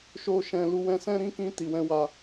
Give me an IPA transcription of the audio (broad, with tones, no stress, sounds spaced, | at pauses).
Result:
ʃ o˦ ʃ ɛ̃˧ l u˧ w ɛ̃˧ s ɛ̃˦ ɾ ĩ˦ k ĩ˦ t i˧ w ɛ̃˦ w a˧